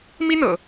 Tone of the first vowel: high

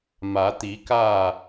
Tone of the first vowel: rising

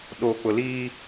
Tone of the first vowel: low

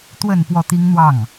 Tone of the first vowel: falling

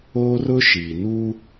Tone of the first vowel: high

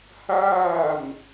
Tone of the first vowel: falling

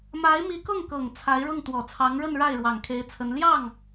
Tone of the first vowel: rising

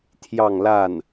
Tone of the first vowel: falling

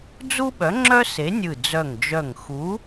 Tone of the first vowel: high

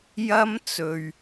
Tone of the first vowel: high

